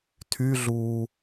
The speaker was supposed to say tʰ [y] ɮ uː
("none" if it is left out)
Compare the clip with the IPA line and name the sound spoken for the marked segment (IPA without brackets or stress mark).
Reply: y